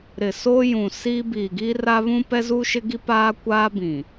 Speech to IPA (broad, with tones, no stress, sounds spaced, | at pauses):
ɾ ɪ˨ s o˦ j ũ˨ s i˦ b iː˨ ɡ i˦ r a˦ β ũ˦ p ɛ˦ z uː˦ ʃ ɪ˦ ɡ i˦ p aː˦ kʷ aː˦ b ĩ˨